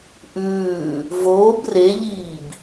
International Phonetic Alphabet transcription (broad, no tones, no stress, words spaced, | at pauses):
ʔʉː | voːb reʎiːb